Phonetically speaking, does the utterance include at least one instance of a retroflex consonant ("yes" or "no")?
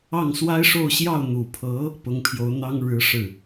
yes